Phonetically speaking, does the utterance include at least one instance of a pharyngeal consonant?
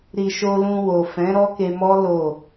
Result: no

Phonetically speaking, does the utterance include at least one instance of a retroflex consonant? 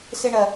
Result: yes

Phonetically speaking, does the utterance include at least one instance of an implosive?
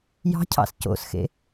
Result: no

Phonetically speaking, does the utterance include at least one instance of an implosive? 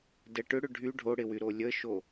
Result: no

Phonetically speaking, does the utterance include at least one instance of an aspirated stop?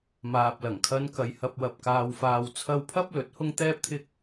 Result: yes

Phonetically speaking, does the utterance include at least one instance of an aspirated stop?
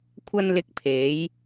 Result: yes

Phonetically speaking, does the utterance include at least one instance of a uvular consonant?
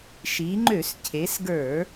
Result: no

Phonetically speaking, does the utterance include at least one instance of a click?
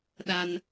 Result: no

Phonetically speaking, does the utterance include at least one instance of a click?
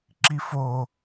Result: yes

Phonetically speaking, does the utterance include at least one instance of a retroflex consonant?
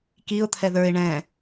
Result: yes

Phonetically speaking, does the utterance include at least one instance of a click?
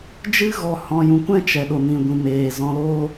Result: no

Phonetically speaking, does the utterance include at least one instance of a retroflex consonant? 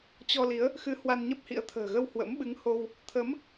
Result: no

